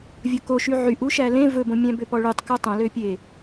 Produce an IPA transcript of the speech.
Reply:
vʲ ɵ k o ʃ y ʕ y ʔ u ʃ æ l ẽ v ɵ b õ mʲ æ̃ b ø p ɔ ɭ y tˤ k u tˤ õ l ø pʲ e

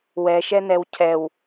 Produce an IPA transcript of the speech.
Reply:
w ɛ ʃ ɛ n ɛ w cʰ ɛ w

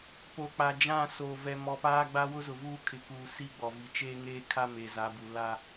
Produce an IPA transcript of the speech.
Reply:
p o˨ k͡p a˨ d͡ʒ ã˦˨ s oː˨ v ɛ˨ m ɔ˨ p aː˦ ɡ͡b a˦ w ʊ˦ z ʊ˨ v uː˦ kʰ ɪ˨ k uː˨ s i˦ ɡ͡b ɔ˨ v i˨ t͡ʃ eː˦ ŋ eː˦ kʰ a˦ m e˨ z a˨˦ b u˨ l a˦

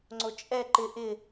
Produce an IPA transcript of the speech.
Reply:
ŋ͡ǀ o t͡ʃʼ ɛ ǃ ɪ ʔ ɪ

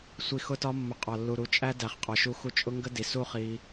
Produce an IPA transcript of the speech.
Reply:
sʷ i˨ x ʊ˧ t ɒ˧ mː ʊ˨ qʼ ɒ˨ lː u˨ ɾ u˨ t͡ʃʼ æ˦ d æ˨ χ qʼ ɒ˨ ʃ u˧ x u˧ t͡ʃʼ ʊ˦ ŋ ɡ ə˦ d i˨ s u˦ χ i˧

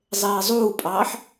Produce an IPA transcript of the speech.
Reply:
zˤ eː zˤ uː pʼ ɑː ħ

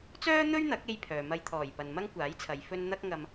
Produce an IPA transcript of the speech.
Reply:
t͡s œː˥ n̪ ɵ˥ ɥ n̪ ɐ˨˥ k̚ e˧ j pʰ œː˨ m ɐ˧ j t̪ʰ ɔː˨˩ j p ɐ˨ n m ɐ˥ ŋ kʷ aː˨˥ j t͡sʰ ɐ˨˧ j f ɵ˥ n n̪ ɐ˥ k̚ ŋ ɐ˧ m

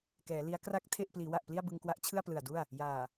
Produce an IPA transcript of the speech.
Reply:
k ɛː˩˦ l i˦˥ a̯ k r a˦˥ k̚ tʰ e˥˩ ʔ p l iː˩˦ w a˨˩ ʔ p l i˥˩ a̯ b ɯ˧ ŋ k w a˦˥ ʔ t͡ɕʰ ɯ˥˩ a̯ p l ɯ˨˩ a̯ d u˥˩ a̯ | j aː˨˩

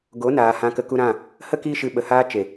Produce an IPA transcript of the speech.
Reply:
ɡ o˨˦ n aː˨ h ã˧ k ə˧ k u˧ ɾ ã˦˨ | h ə˦ k iː˧ ʃ ɨ˨ ɓ ə˨ h aː˧ t͡ʃ e˨

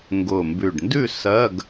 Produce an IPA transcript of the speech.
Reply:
ŋ ɡ ʊ˨˩ m b ʉ˨˩ ɖ n d ʉ˦˨ s ɜ˧˥˧ ɡ

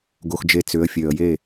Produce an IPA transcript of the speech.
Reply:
ɡ o˨ x d͡ʒ e˨ t͡s ʏ˨˦ ə̯ fʲ ø˨ ə̯ j e˦˨

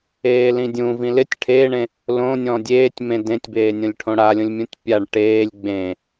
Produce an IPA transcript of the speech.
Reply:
eː l ĩ dʲ ũ v ĩ l ɪ tʲ ʈʰ eː ɳ ẽ | l õ nʲ ɔ̃ dʲ eː tʲ m ẽ d ẽ tʲ b eː nʲ õ lʲ ʈʰ õ ɽ a lʲ õ lʲ mʲ ũ tʲ pʲ a ɳ ʈ eː lʲ ɡ͡b ẽ

